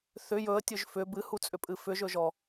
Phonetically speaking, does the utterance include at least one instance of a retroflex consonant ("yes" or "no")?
no